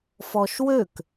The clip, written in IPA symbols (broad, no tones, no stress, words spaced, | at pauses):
fɔʃwøk